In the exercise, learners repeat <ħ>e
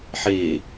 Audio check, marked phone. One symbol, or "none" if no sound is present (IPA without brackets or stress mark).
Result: ħ